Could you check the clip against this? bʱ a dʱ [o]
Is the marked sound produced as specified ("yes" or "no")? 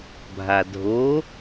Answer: yes